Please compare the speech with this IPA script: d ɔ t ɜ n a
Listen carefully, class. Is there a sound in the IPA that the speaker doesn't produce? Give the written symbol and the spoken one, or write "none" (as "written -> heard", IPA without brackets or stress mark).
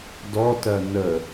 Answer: a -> ə